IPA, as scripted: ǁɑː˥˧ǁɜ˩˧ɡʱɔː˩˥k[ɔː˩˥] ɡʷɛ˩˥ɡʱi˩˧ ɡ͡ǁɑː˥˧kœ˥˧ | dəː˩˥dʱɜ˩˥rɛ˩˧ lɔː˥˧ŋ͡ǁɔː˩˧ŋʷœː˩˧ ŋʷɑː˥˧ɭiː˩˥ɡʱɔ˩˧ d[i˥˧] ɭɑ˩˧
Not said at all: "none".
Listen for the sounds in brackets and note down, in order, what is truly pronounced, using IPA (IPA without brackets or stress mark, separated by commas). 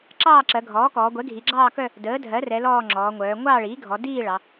ɔː˩˧, iː˥˧